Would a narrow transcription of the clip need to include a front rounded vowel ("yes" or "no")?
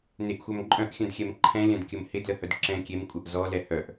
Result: yes